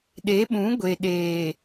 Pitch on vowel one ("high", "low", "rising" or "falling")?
rising